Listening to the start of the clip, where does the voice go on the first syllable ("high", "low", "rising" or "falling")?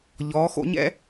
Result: rising